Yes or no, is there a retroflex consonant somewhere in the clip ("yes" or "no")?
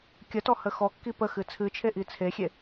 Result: no